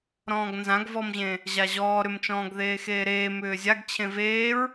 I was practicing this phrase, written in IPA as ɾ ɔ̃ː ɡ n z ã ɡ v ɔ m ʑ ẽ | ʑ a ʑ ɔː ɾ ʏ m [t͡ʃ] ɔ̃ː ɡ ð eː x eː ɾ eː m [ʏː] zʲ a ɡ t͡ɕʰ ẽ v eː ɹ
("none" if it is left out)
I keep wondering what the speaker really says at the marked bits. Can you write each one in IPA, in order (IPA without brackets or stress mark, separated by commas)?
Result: t͡ʃ, ʏː